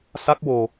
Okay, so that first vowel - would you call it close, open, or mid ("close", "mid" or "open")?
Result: open